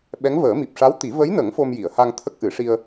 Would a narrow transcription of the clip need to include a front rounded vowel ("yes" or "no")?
no